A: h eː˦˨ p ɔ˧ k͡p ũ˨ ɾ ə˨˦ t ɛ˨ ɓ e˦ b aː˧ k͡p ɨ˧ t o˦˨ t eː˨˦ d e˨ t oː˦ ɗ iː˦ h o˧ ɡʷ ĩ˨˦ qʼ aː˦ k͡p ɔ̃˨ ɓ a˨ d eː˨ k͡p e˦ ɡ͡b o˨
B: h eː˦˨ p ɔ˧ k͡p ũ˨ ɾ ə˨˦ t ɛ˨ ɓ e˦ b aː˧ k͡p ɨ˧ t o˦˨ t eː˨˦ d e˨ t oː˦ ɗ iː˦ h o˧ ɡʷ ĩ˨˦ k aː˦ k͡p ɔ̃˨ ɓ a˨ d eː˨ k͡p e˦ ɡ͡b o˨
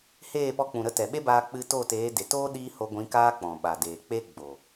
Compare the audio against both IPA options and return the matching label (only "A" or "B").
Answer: B